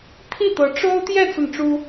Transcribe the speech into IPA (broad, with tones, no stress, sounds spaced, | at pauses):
t̪ʰ i˥˩ t̪ ɤ˧˥ ʈ͡ʂ o˥ ʊ̯ t̪ j ɛ˥˧ t͡s ə˥˩ n ʈ͡ʂ u˥